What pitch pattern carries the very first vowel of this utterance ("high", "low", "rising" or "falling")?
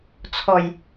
low